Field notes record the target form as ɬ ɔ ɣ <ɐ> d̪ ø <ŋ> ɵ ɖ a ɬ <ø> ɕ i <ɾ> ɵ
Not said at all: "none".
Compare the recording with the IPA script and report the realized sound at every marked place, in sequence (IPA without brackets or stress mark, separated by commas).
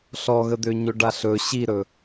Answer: ə, ɲ, ɵ, ɾ